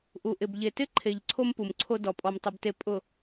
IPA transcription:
ʔu˨ʔɪ˨b ʎe˨tɪ˦ǃʰe˨ʎ ǀʰo˦mpu˨mǀʰo˦ dɔ˨ pʼɔ˨mtˤʊ˨bte˨ pʼʊ˨

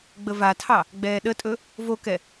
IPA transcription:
ɡ͡bəvatʰɑ | ɡ͡bɛːɗətʼɵ | vokɛ

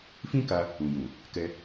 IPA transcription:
fĩ˦ka˧ | ũ˨jũ˨ | kɛ˧

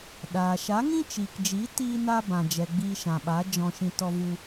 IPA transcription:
ɗaː˨ ʃa˨˦ŋĩ˦t͡ʃiː˨kd͡ʒiː˨˦ tiː˦ na˦bã˨ d͡ʒɛ˨ɡ͡biː˧ʃã˨ɓa˨˦ d͡ʒɔ̃˧ʃĩ˧ tɔ˧vu˧

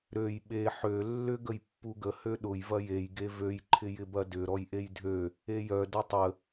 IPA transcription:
ɾøj ɓe ħø lːʏ ɡəjpːuɡə høɗʊj vɐjej ɡevøj ǃʰɪjɪbɐdʏ ɾɔjʔejdʱø | ejœ dɐtˤə

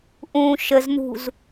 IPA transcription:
ʔũːʃəzn̪ṳz

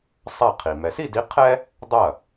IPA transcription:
sˤa˥˩qʰi˩ mɛ˩si˥˩di˨˥ qʰɛ˥ | dˤɐ˥˩

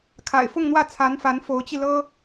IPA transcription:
kʰa̰˨˩ɪ̯fʊ˥˧ŋn̪wä˥˩ t͡sʰa˧˥nfa˧˥n fo˧˥ʊ̯t͡ɕi˧lɤ˥

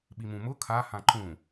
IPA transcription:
ɓimũ mʊ kʰa hãǃũ

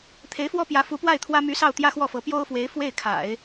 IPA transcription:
t̪ʰe˧˥ɪ̯fwɔ˥pjä˧˥ fu˧˥pwa˥˩ɪ̯t̪ʰwä˥ my˧˥ sɑ˥˧ʊ̯t̪jä˥˧xwɔ˥˩fɤ˧˥ pjo˥ʊ̯fwe˧˥ɪ̯ fwe˥˩ɪ̯kʰa̰˨˩˦ɪ̯

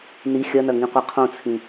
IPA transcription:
ni xʲɐnɐŋĩ qʷaqʰõt͡sʰĩ

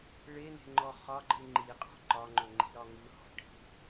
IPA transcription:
ɭene̤ŋ͡ǃɔ χɒɡ͡ǃɯ ŋ͡ǃiqʼɔ̤ ǃɒŋ͡ǃɵŋ͡ǃi̤ɾɒ ŋɯhɔ̤ ʈi̤

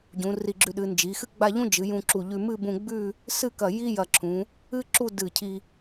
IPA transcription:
ɟũ˩˧ri˧˩ɡ͡ǁʉ˧ɗɨ˩˧ nd͡ʒi˩˧xɨ˥ ɡ͡ba˥˧ʎũ˥d͡ʒɨ˩˧ jũ˧ǁu˧˩ʎʉ˧ mɨ˥˧bũ˧ɡ͡bʉ˥˧ | sɨ˥˧kɐ˧˩ ji˥jɐ˧˩ǁʰũ˩˧ | ɨ˥ǁu˥˧ dɨ˧˩cʰi˧

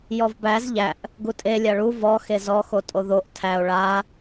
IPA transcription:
jɔvbæz ʎæʔ | ɡutʼe lʲaɭu vɔxe zɔ xotʼoðoʔ tʰæo̯ ɭa

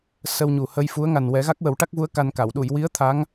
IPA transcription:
sə˧wɲu˨˩hə˧jfu˧˥ə̯ ŋa˨˩nwɛ˨˩˦ ɣa˦˥k̚wə˨˩˦wʈa˦˥k̚vu˧˥ə̯ ka˧nka˨˩˨w ɗu˨˩˨jwi˧˥ə̯ t̪ʰa˧˥ŋ

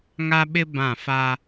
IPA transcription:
ŋa˦ɓɪ˦ bã˦˨fa˦

